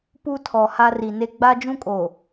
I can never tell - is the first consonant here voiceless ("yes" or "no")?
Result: yes